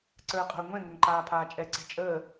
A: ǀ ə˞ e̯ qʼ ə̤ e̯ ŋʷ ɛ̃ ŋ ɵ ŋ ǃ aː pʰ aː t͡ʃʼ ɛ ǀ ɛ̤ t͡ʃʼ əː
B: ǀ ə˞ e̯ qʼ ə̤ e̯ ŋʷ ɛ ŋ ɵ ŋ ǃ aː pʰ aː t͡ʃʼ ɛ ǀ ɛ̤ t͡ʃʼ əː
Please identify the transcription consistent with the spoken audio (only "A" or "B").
A